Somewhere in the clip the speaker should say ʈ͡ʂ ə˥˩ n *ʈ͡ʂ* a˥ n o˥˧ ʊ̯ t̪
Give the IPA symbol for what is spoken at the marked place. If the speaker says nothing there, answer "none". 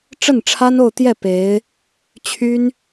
ʈ͡ʂʰ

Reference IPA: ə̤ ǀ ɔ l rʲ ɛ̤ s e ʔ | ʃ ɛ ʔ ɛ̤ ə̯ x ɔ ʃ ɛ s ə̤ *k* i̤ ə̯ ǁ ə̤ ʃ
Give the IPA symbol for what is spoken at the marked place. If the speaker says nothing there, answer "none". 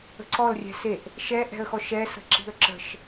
ǁ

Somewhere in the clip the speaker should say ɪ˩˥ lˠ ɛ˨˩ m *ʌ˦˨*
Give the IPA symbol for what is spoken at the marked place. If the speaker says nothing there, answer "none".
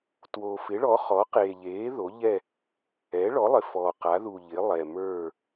ə˞˦˨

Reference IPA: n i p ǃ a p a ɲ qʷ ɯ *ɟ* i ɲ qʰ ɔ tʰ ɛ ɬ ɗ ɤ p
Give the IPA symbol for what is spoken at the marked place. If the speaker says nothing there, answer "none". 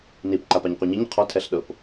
ɲ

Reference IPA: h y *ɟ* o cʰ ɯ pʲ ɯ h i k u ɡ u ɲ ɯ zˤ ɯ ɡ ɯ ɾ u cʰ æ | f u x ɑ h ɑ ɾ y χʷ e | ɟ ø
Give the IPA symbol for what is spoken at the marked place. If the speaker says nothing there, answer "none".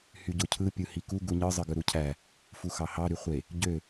ɟ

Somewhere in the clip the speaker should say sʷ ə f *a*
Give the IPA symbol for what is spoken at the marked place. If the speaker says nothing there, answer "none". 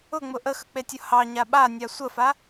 a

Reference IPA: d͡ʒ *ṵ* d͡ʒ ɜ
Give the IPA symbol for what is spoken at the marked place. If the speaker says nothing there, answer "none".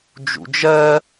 ṵ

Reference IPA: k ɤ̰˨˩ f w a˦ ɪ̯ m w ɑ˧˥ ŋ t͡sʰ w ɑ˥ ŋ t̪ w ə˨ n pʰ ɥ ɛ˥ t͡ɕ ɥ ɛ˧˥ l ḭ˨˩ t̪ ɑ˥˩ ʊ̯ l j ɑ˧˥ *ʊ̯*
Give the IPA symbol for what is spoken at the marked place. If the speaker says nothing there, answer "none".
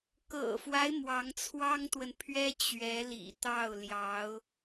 ʊ̯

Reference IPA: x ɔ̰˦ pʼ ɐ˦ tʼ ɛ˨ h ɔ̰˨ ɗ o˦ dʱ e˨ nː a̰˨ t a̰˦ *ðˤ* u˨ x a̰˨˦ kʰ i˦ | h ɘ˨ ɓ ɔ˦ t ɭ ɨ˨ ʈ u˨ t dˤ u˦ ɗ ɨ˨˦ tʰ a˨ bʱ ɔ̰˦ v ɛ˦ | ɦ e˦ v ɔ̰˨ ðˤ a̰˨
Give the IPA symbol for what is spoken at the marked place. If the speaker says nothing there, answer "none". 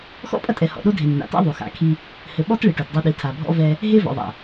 ðˤ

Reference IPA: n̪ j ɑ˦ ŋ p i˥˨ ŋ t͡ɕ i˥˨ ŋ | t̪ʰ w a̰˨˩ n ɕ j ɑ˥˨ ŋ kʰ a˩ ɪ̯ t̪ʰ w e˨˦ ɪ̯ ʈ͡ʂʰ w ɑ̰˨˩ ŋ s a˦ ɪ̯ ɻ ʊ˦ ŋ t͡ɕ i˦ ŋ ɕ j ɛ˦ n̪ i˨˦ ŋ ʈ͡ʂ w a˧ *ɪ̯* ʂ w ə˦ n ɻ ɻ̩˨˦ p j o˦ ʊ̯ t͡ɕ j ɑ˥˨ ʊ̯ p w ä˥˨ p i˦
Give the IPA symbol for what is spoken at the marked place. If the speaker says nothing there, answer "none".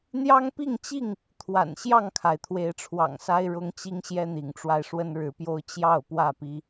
ɪ̯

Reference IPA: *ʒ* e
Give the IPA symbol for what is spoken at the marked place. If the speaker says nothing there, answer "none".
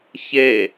ç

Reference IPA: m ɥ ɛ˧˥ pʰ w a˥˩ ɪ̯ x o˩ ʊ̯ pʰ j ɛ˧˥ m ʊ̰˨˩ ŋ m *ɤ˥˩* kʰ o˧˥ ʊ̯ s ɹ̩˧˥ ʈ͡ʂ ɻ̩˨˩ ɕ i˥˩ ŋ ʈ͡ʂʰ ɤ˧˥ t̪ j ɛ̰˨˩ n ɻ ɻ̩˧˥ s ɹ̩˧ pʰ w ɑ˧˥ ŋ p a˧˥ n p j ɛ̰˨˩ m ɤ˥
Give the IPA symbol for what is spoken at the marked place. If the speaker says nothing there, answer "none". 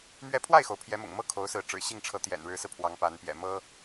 ɤ˥˩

